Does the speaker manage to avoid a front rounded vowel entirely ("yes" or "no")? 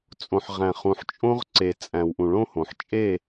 yes